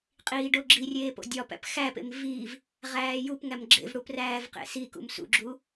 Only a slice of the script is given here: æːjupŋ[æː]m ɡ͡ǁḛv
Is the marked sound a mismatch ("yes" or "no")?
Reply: yes